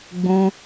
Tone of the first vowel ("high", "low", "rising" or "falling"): high